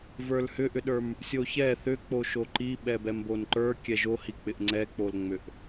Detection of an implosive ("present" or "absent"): present